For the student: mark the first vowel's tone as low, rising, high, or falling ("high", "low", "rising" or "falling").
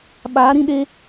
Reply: rising